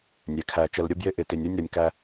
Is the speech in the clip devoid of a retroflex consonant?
yes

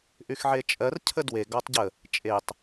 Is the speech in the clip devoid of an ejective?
no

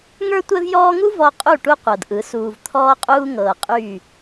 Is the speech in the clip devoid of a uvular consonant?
no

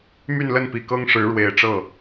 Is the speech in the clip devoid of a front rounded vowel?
no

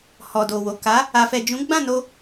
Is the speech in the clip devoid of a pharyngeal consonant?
yes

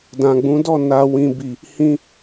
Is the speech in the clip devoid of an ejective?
yes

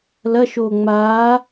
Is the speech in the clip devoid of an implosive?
yes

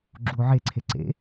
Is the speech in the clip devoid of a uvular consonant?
yes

